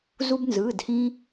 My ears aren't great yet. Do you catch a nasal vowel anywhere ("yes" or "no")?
yes